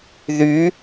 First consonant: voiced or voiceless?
voiced